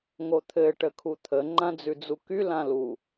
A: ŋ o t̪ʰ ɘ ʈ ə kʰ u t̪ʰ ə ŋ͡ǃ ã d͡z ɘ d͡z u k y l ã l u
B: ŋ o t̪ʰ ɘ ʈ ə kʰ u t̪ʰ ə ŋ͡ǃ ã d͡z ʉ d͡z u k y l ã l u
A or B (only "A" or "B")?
B